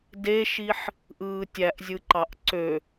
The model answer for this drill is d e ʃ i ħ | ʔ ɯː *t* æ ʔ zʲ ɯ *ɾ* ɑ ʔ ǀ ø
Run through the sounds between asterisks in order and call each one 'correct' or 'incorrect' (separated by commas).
incorrect, incorrect